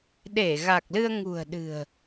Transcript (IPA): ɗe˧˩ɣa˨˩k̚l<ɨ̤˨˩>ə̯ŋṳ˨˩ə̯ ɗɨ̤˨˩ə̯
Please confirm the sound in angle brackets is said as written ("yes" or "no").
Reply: no